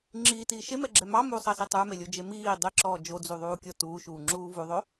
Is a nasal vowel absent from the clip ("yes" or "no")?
yes